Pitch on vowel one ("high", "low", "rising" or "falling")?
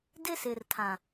high